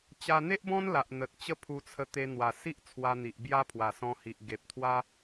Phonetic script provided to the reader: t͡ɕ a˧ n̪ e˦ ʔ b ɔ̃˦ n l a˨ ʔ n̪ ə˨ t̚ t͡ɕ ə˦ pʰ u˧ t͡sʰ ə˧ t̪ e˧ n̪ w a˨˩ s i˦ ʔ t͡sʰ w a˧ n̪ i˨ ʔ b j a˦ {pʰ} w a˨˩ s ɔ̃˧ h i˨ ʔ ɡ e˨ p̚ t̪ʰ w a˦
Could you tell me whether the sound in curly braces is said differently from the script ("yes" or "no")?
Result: no